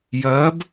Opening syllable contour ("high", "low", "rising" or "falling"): rising